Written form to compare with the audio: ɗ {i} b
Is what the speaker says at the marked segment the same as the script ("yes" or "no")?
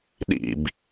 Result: no